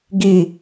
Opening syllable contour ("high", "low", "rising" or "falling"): low